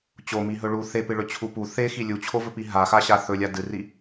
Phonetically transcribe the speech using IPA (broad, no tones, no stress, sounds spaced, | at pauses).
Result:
t͡ɕ o m i ɦ ɵ ɭ u θ e p ɨ ɭ ɵ t͡ɕʰ u p u θ e x i lʲ u t͡ɕʰ o v ɵ p i ɦ a x a ɕ a θ ɵ lʲ a d ɨ r i